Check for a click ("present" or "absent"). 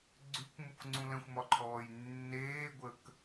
present